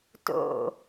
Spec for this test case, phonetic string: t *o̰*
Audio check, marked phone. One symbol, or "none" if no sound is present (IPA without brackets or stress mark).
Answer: o̰